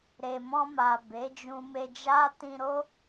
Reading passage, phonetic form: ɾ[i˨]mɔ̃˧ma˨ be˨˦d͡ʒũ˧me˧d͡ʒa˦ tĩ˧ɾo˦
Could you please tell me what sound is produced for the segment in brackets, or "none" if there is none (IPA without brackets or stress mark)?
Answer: e˨